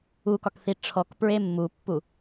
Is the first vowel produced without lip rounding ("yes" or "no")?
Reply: no